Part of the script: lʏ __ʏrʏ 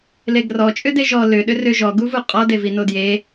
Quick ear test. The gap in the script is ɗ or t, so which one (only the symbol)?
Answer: ɗ